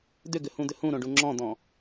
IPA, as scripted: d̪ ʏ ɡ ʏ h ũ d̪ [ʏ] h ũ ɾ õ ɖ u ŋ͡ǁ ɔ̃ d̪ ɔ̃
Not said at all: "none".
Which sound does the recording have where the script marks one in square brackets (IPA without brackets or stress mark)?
ʏ